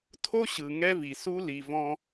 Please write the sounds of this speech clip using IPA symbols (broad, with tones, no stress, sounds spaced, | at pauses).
tʰ o˦ ɕ ɯ˨ ŋ ɛ˦ v i˨ s u˦ l i˨ v ɔ̃˧